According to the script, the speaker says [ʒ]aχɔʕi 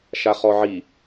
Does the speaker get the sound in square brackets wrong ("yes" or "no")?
yes